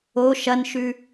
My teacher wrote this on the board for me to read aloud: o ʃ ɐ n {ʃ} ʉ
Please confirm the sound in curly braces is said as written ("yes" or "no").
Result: yes